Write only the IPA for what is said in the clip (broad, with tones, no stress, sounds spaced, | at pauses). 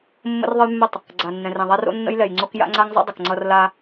mː ə̰˦ r ðˤ ə˦ j mː ə˦˨ tˤ | ɡ͡ǀ a˨ nː ɛ̃˨ r ɛ̃˨ ðˤ a˦ r o̰˦ nː ə̰˦ j l ɛ˨ j ŋ͡ǀ o˦ k j a̰˦ ŋ͡ǀ a˦ ŋ zˤ ə̰˦ dˤ ə˨ k ŋ͡ǀ ʌ˦ r l a˦